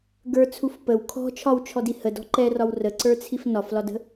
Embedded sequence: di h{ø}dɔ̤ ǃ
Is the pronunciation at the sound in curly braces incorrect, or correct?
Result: incorrect